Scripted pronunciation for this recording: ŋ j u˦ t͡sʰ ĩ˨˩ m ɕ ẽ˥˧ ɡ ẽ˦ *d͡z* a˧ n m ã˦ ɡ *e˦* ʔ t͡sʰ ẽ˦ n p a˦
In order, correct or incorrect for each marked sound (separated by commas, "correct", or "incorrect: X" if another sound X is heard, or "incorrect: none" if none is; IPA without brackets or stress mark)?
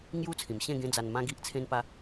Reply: correct, incorrect: i˦